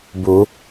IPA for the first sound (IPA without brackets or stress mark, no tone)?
b